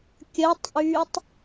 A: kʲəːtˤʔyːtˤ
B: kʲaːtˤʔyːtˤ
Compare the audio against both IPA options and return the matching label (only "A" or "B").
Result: A